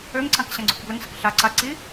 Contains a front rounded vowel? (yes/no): yes